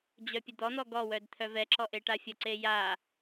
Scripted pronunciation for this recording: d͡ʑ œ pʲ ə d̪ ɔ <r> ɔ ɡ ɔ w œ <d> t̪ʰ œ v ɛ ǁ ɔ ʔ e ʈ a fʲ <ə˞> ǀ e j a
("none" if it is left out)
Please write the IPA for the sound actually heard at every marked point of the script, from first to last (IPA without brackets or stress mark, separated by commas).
n̪, d, ə